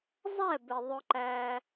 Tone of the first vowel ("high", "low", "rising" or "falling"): falling